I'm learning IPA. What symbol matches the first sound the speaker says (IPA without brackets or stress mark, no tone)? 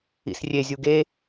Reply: ḭ